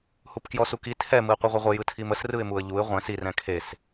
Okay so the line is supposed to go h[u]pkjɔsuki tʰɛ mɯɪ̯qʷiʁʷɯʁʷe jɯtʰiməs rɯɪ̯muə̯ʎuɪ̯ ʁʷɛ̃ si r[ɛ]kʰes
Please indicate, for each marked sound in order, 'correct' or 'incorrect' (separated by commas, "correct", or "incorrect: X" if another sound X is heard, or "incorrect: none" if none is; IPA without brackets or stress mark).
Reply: correct, incorrect: ɛ̃